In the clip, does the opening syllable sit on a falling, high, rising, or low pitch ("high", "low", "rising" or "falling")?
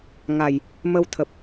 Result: low